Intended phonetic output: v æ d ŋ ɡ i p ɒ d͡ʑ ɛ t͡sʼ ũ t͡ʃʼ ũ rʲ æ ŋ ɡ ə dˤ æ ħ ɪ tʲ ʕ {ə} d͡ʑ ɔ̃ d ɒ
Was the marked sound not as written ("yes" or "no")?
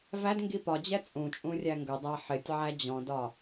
yes